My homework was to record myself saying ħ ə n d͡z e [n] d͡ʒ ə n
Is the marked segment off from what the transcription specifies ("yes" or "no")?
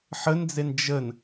no